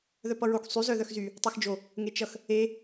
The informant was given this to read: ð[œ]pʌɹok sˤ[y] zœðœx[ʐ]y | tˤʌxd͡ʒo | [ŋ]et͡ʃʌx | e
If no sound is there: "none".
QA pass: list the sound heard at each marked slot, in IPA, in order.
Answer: œ, y, z, ŋ

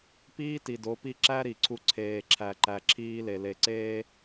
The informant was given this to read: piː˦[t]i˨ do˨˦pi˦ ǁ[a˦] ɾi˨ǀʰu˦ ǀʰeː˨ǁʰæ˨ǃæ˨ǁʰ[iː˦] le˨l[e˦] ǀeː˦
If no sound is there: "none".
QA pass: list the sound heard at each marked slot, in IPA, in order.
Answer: t, æ˦, iː˦, e˨

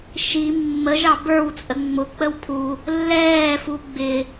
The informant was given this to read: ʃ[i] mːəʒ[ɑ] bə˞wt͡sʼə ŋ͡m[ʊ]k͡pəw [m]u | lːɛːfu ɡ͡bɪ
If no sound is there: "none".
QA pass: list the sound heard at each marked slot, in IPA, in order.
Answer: i, ɑ, ʊ, pʰ

